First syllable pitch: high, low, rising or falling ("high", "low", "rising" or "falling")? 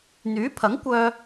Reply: rising